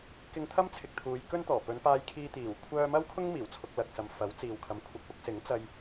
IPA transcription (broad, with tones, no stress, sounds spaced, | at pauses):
k ɪ˧ ŋ t̪ʰ ɐ˥ m t͡sʰ ɪ˨ k̚ t̪ʰ uː˨˧ j k ɵ˥ n t̪ ɔː˨˩ p ɵ˨˧ n p aː˧ j kʰ iː˧ t̪ iː˨˩ w kʷʰ œː˧ m ɐ˥ w kʰ ʊ˥ ŋ m iː˨˩ w t͡sʰ ʊ˧ k̚ l ɐ˨ k̚ s ɐ˨ m f ɐ˨˥ w t͡s iː˨ w kʰ ɐ˨˧ m kʷʰ ɐ˧ k̚ p ʊ˥ k̚ s ɪ˨˥ ŋ t͡s ɐ˧ j